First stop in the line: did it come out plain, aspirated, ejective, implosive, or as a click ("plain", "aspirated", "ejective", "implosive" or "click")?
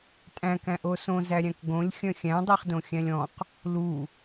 ejective